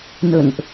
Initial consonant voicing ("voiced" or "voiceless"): voiced